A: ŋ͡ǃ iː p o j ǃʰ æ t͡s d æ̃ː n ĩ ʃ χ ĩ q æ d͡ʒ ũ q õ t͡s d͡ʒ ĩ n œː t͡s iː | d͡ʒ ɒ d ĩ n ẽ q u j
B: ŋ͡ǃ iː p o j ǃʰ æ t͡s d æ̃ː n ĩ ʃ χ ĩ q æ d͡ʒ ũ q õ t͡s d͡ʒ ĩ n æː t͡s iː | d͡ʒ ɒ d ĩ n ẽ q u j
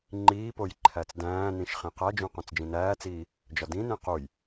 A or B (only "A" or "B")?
B